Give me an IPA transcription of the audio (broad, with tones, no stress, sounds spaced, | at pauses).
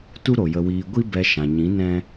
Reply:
t u˦ ɾ o˨ j ə˧ w iː˧ ɡʷ i˦ b ɛ˧ ʃ ã˨ ɲ ĩ˨˦ n ɛ̃˦